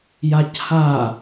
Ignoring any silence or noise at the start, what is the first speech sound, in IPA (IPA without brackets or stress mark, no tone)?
j